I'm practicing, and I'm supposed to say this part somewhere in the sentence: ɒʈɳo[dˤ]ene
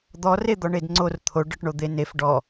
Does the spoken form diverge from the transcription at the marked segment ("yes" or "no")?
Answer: yes